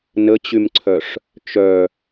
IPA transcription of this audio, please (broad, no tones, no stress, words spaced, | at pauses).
nət͡ɕymǀʰœʂ | t͡ʃœ